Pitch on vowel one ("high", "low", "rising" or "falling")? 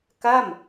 falling